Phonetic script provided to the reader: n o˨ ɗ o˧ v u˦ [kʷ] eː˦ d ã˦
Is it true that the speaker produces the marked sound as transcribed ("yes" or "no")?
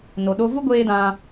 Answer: no